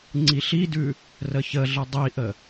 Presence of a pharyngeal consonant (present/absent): absent